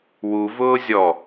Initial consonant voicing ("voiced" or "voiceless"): voiced